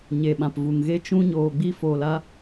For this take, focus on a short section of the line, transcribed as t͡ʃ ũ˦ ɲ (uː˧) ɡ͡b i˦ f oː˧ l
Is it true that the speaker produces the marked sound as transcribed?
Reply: no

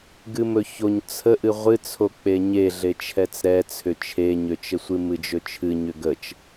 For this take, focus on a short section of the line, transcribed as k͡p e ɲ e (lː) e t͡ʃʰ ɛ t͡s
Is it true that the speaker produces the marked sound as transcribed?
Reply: no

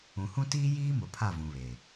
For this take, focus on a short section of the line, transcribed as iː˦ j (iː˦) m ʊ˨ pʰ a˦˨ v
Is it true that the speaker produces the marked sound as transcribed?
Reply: yes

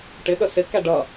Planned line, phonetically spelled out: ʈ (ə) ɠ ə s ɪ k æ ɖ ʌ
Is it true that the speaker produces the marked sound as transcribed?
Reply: no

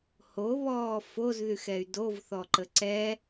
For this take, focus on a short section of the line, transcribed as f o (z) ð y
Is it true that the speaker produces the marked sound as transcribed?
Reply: yes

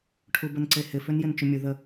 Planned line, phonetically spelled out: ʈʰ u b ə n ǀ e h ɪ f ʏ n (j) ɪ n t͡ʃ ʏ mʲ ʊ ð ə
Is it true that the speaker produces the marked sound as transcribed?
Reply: yes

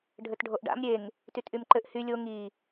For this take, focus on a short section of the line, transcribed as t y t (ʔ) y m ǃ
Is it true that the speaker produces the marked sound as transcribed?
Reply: yes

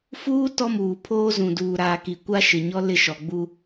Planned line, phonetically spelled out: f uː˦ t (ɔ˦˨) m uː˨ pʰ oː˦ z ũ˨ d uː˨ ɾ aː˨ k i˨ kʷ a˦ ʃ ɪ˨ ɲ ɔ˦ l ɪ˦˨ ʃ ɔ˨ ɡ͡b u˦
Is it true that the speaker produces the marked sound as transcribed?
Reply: no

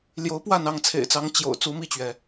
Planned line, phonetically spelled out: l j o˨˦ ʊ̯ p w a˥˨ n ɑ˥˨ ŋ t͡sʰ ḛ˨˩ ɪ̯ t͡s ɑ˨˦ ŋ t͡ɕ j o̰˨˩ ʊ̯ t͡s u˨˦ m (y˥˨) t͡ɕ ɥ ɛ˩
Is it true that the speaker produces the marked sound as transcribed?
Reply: no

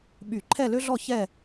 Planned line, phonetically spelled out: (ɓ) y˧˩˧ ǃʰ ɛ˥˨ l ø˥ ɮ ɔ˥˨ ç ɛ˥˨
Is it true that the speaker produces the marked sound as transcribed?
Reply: yes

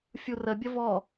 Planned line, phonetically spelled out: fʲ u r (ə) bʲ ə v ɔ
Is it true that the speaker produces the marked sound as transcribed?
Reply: yes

